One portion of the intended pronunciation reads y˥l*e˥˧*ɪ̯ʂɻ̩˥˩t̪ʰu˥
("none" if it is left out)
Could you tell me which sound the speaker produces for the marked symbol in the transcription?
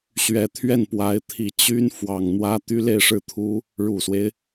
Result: e˥˧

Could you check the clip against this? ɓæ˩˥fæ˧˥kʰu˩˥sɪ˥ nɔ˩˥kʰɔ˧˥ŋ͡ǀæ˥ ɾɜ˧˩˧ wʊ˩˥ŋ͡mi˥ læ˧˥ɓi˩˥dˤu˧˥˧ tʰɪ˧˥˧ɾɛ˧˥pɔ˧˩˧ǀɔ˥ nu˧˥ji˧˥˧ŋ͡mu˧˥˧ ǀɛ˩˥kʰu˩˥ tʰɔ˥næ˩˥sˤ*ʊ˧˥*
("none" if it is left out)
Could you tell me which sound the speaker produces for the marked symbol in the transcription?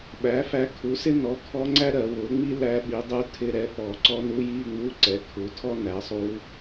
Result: u˧˥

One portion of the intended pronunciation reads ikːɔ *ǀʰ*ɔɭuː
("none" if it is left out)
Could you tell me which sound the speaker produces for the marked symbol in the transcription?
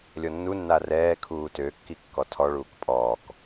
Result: tʰ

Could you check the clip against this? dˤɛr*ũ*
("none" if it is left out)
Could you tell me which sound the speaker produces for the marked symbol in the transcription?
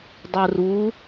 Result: u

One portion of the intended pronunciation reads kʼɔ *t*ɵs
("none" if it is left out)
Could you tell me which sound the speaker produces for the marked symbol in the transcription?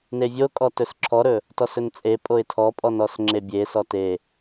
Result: t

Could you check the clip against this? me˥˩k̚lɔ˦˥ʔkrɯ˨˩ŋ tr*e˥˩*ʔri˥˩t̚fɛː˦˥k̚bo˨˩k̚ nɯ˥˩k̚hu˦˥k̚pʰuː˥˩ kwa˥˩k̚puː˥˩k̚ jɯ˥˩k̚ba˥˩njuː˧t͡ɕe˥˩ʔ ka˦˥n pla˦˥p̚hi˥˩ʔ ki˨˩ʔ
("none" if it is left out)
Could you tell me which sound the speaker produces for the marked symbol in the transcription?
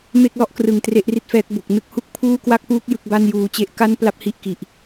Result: e˥˩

